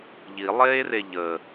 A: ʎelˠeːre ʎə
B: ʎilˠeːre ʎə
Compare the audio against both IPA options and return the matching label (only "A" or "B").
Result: B